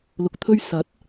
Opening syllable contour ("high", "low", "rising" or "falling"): low